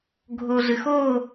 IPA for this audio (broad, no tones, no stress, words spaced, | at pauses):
ɡʱoɮɨxo